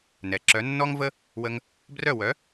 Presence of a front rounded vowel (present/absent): present